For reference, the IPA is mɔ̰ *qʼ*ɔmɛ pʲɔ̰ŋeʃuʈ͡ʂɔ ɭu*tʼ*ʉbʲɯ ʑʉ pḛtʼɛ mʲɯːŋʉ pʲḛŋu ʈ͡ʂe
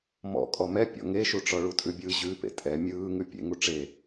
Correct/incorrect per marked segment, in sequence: incorrect, correct

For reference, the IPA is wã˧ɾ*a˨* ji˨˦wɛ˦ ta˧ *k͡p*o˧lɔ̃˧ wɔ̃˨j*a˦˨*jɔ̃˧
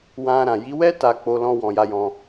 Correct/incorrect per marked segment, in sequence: incorrect, correct, incorrect

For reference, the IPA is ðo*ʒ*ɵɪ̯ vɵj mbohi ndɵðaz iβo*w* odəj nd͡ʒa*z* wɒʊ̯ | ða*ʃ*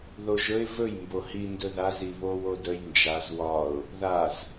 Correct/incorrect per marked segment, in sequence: correct, correct, correct, incorrect

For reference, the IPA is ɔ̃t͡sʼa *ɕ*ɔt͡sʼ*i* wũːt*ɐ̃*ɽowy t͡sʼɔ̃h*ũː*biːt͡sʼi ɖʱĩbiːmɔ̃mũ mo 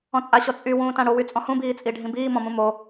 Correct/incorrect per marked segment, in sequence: correct, incorrect, incorrect, incorrect

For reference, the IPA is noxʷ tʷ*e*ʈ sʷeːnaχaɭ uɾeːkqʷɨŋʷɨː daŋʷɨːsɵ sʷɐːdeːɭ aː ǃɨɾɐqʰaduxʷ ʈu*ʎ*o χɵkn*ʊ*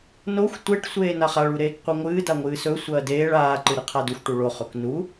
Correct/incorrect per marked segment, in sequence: correct, incorrect, incorrect

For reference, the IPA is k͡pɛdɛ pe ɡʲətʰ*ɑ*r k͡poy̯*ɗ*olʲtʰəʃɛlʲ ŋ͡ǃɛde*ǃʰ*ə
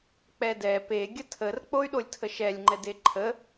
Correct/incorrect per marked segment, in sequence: incorrect, correct, correct

